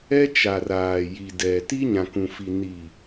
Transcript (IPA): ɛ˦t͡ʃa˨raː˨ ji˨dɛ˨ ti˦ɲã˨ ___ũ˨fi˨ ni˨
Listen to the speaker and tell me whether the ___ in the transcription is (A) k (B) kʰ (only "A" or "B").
A